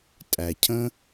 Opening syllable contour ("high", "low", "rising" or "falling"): low